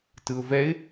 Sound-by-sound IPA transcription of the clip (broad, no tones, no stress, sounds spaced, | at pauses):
t ɯ ʊ̯ v ɛ ɪ̯